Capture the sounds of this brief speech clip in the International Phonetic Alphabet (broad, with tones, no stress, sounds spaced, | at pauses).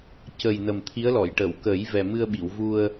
c ə˨˩ j n ə˨˩ m t̪ʰ i˧˥ ə̯ l ɔ˨˩˨ j ʈ ə˨˩˨ w k ə˨˩˦ j v ɛ˨˩ m ɨ˧ ə̯ ɓ i˨˩˨ w v u˧ ə̯